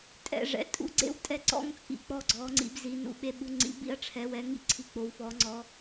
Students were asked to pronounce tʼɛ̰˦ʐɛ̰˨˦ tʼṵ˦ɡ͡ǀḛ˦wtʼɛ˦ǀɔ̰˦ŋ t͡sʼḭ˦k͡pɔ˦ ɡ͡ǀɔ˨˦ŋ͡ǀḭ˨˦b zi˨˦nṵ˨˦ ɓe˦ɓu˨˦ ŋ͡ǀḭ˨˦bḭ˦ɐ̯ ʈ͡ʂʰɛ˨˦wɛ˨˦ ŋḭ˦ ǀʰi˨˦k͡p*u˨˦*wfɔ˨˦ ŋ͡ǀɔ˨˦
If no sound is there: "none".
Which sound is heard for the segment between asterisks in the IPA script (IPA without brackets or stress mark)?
o˨˦